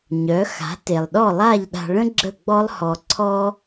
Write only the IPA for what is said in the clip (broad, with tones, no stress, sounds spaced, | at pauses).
ɲ œ˩˥ x a̤˩˥ t e˩ lˠ ɗ ɔ˥˩ lˠ a˥˩ ʎ ɗ a̤˧ ɭ ə̃˥ ɡ͡ǁ ə˥˩ ɡ͡b ɔ˥ lˠ h ɔ˧ ǀʰ ɔ˥